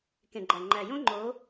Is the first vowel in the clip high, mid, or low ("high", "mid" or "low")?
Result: mid